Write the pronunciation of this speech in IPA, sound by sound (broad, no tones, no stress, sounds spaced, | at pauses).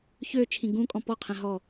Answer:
ç ø t͡ʃʰ ĩ ɡ ũ kʼ ɔ̃ p ɔ qʰ ɛ̃ ɦ ɔ